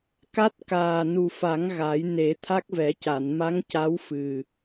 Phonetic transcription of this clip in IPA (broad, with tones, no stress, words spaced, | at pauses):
ka˦˥t̚kaː˨˩nu˨˩fa˨˩˦ŋ ɣa˨˩˦jne˨˩˦ t̪ʰa˦˥k̚vɛ˨˩˦ca˨˩˨n ma˧˥ŋca˧˥w fɨ˨˩